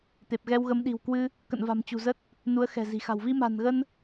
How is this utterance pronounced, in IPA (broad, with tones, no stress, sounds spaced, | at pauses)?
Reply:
t̪ e˨˩ p̚ ɣ ɛ˧ w ɣ ə˨˦ m ɗ i̤˨˩ w k w ɨ˧ | k ə̰˧˨ n v a̤˨˩ m t͡ɕ ṳ˨˩ z ə˦˥ t̚ | n u˨˦ ə̯ x ɛ̤˨˩ z i̤˨˩ x a̤˨˩ w v i˧ m a̤˨˩ n ɣ ə˧ n